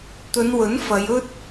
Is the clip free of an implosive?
yes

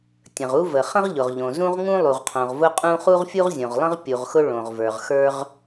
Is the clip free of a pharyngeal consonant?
yes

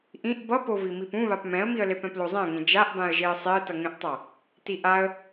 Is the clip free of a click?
yes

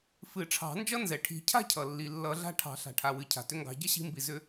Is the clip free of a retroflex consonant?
no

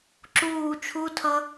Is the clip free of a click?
no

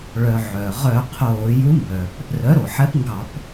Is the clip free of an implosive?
yes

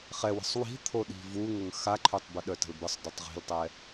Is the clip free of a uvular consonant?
no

